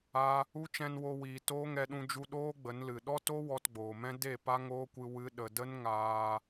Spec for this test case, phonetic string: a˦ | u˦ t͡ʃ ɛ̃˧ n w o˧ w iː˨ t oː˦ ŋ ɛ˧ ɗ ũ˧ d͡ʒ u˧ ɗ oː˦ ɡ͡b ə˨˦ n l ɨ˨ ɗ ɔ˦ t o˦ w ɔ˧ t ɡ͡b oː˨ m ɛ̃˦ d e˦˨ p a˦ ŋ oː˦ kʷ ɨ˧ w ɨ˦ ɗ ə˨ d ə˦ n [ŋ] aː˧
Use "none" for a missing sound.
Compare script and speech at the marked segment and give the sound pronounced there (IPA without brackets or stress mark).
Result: ŋ